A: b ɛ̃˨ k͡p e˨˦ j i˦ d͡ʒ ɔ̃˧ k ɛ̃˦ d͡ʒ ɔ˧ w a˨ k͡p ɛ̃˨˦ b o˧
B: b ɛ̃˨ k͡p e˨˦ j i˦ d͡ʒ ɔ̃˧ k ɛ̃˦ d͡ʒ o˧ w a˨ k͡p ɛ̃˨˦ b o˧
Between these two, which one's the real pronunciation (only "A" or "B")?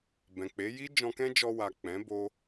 A